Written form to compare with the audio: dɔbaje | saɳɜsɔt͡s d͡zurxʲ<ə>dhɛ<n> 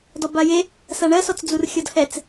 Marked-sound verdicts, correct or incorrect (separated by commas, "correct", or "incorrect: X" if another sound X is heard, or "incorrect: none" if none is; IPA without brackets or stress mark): incorrect: ɔ, incorrect: t͡s